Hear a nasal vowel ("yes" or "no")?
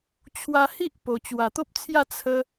no